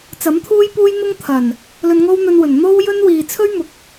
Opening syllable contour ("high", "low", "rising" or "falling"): rising